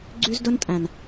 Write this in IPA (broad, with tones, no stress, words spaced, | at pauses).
ɡ͡ǀy˦zdɵ˦ntʼæ̃˨n